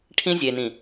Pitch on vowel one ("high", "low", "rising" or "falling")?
high